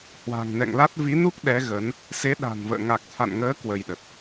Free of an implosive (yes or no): no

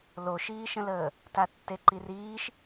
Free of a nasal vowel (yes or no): no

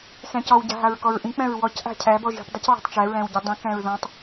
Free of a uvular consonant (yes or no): yes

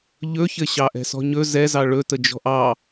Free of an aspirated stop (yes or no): yes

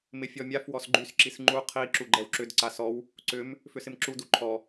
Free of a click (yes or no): no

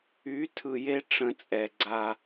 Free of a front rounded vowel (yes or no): no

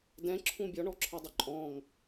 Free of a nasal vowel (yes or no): no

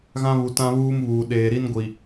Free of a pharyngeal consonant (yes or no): yes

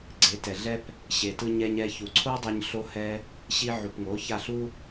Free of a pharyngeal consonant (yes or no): no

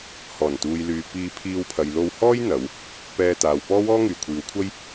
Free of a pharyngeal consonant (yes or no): yes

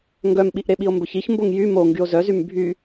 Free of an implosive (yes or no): no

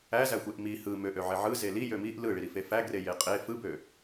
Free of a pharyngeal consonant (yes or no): no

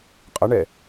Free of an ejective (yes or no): no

